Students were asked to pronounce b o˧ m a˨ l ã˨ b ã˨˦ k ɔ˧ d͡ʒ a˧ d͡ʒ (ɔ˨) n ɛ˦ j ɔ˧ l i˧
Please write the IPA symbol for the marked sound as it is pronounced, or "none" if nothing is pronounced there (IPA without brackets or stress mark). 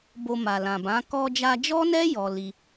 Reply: ɔ˦